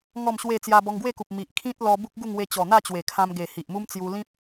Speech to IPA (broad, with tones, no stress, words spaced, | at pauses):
ŋɔ˥˧mɕwe˥˧ t͡sja˧bɔ˧ŋɡwe˥˧ku˨p̚ mi˨ʔ kʰĩ˦t̚ lɔ˧ bu˦k̚ɡu˥˧ŋwe˧t͡ɕɔ˨˩ n̪a˥˧t͡ɕwe˨˩kʰã˧mɡe˨˩ hi˨ʔmu˦mt͡sju˧ lĩ˦p̚